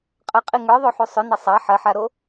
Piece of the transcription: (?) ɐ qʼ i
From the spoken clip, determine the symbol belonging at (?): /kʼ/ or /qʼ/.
qʼ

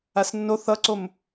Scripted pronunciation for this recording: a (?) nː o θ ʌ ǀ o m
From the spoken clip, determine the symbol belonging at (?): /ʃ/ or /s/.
s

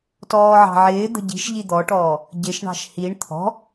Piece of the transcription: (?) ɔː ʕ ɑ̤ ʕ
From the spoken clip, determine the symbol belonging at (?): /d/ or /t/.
t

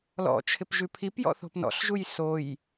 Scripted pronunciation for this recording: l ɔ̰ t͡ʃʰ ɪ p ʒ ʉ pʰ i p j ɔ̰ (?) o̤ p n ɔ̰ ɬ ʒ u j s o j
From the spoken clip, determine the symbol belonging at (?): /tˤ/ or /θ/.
θ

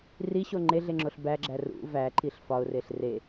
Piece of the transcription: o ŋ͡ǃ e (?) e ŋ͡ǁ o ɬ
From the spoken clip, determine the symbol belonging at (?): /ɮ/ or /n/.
ɮ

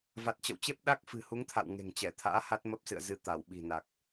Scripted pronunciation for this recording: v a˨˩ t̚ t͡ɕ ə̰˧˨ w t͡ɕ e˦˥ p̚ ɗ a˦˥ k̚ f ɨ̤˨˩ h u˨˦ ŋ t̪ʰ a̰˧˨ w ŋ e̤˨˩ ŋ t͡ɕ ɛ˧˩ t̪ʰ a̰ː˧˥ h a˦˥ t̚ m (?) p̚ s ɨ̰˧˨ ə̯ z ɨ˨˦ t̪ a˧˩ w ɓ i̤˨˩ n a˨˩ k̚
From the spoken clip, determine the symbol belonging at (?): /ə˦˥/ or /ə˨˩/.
ə˦˥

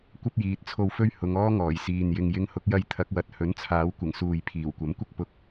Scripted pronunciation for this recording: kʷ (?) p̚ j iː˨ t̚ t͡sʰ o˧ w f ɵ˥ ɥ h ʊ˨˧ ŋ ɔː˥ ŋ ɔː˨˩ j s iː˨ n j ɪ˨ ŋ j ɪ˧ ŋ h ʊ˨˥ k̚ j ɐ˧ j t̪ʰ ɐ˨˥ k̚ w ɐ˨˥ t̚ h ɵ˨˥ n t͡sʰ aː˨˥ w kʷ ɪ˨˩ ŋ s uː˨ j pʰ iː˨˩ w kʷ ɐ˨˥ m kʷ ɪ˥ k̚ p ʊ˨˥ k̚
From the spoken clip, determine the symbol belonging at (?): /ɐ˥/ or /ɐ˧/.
ɐ˥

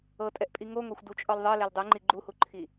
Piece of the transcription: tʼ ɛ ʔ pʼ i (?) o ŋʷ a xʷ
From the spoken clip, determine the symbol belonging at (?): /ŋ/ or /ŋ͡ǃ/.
ŋ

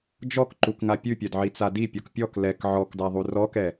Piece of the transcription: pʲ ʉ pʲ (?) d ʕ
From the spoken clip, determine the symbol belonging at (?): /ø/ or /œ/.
œ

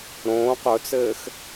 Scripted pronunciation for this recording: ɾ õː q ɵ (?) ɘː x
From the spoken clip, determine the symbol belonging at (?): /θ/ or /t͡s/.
t͡s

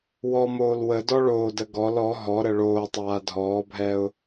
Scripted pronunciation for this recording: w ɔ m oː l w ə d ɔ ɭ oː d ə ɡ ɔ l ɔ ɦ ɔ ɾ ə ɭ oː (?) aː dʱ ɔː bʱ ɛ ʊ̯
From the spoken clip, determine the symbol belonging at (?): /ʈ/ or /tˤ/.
tˤ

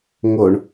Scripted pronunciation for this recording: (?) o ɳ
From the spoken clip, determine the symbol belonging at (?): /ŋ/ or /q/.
ŋ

